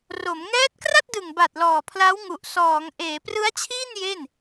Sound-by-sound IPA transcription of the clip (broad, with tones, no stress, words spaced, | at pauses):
ro˩˦m ŋɛː˦˥t̚kra˥˩t̚dɯ˨˩ŋ ba˨˩t̚ lɔː˨˩pʰla˦˥w ŋu˨˩ʔsɔː˩˦ŋ ʔeː˩˦prɯ˦˥a̯t͡ɕʰiː˥˩n je˥˩n